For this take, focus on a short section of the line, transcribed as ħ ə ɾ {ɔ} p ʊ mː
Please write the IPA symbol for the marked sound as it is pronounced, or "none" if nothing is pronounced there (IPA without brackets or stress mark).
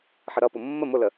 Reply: ʌ